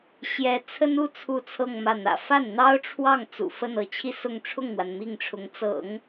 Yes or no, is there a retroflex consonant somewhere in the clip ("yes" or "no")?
yes